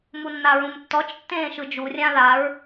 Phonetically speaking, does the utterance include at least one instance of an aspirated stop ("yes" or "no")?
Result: no